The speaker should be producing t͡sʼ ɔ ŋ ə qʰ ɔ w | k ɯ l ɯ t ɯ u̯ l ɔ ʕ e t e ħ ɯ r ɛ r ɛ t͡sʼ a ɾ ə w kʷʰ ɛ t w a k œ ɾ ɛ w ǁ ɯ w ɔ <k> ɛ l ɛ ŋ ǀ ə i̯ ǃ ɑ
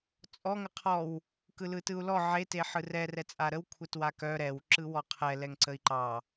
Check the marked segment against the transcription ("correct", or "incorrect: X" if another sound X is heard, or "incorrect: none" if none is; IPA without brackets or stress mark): incorrect: qʰ